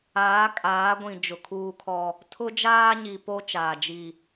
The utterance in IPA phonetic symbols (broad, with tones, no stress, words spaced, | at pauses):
aː˨˦kʼaː˨˦ ɡʷĩ˨ d͡ʒʊ˨kʰuː˦kʰɔ˦ | tʰʊ˦d͡ʒaː˦ɲi˨po˦ t͡ʃaː˨d͡ʒi˦˨